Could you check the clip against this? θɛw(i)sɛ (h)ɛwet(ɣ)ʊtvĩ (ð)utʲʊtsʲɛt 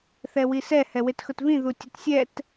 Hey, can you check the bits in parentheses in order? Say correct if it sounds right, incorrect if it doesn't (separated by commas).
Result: correct, correct, incorrect, correct